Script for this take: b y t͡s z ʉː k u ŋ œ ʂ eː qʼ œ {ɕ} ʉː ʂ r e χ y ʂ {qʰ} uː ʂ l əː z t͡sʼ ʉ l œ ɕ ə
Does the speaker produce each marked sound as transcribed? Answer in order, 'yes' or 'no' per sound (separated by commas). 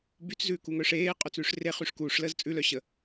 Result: no, no